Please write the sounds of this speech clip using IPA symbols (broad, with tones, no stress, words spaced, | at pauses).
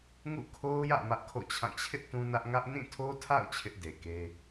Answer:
ŋṵ˦˨kʰo˦ʊ̯jä̰˦˨ mä˦ʔkʰo̰˦˨t͡ɕʰã˦˨ t͡ɕʰɪ˦ʔ tũ˦nä˦ʔ ŋä˦ʔ nĩ˦˨tʰo˦tʰa̰˦˨ʊ̯ t͡ɕʰɪ˦ʔde˨ke˦